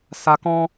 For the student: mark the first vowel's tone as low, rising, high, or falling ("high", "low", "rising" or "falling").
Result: low